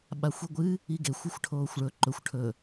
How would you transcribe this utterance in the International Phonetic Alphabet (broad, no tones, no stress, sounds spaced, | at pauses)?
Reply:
ɓ a xʷ i ɡʷ ɨ | i ɡ e xʷ ɨ xʷ ʈʰ oː xʷ ɭ ɵ ǃ ɵ xʷ ʈʰ ɵ